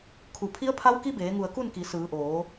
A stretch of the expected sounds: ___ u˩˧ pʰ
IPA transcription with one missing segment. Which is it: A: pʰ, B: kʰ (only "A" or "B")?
B